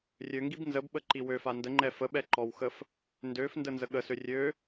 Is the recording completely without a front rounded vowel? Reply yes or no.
no